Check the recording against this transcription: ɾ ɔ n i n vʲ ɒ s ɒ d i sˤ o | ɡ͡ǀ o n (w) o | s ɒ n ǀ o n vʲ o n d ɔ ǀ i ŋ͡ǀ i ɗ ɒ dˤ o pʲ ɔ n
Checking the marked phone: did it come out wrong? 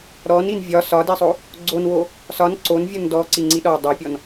no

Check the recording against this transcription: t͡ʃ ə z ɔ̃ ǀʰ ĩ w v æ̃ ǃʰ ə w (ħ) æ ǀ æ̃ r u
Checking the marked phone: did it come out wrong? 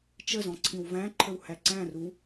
yes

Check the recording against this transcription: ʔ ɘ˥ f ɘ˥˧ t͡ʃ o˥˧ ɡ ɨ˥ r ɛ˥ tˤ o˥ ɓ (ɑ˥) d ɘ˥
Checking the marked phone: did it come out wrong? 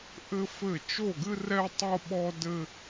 yes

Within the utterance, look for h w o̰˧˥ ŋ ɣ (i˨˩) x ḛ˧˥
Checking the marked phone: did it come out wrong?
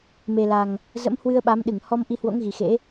no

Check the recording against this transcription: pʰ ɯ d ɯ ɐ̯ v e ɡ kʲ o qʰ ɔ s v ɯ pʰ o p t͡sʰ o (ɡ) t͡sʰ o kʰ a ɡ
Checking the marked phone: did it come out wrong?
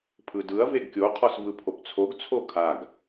no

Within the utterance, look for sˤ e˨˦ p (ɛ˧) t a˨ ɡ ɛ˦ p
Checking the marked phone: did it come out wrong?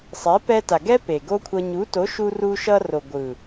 no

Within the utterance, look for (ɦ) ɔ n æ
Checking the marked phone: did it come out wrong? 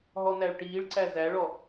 no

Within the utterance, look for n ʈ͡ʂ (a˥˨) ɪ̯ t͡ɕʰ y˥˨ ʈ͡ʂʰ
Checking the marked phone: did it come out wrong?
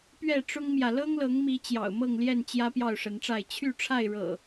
no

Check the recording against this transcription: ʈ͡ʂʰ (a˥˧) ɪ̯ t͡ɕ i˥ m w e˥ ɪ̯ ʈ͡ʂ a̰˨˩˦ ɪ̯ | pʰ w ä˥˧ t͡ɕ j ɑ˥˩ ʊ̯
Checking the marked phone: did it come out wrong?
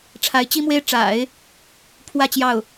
yes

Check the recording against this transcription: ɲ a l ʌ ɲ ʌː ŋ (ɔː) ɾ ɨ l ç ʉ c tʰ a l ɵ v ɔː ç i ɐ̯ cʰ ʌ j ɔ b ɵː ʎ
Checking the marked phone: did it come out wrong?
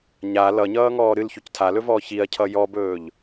no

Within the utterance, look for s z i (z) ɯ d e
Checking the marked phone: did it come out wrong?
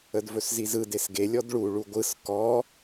no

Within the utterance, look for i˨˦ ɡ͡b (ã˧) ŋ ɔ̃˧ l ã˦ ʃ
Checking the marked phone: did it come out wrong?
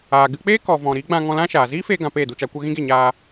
no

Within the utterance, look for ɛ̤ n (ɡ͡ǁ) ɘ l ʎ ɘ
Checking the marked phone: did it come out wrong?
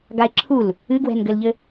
yes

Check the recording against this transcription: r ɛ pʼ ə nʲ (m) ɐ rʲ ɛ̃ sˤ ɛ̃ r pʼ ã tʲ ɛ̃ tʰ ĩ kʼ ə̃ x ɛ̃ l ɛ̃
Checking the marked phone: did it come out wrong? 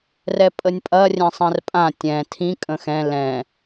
yes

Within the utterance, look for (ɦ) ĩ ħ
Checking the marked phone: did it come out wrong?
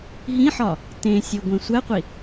no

